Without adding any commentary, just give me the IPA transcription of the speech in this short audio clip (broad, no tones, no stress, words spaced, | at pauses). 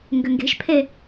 ŋɡʏŋɡe̤ʃpʰe